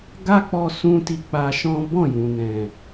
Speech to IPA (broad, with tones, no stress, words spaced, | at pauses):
ɡa˦k͡pɔ˧ sũ˦ti˧k͡pa˧ʃɔ̃˦ bɔ̃˦˨jũ˨ nɛ̃˨